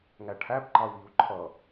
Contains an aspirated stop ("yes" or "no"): yes